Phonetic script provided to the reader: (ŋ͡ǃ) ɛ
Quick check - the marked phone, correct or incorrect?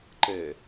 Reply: incorrect